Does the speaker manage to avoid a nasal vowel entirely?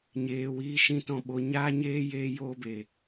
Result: no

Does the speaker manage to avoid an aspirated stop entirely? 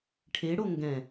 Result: no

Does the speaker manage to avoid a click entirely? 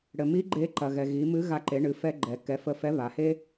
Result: no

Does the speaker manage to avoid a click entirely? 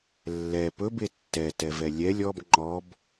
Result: no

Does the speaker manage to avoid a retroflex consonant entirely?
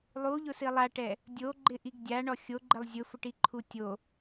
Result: no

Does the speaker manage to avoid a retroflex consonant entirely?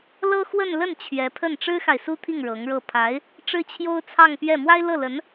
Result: no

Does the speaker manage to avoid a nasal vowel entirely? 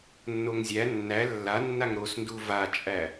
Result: yes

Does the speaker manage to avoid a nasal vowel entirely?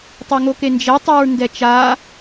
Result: yes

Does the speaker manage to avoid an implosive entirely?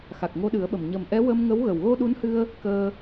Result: no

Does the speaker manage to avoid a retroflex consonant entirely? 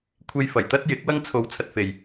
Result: yes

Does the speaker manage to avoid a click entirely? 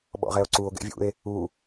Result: no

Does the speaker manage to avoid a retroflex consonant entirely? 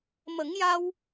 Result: yes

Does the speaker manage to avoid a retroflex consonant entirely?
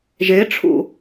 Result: no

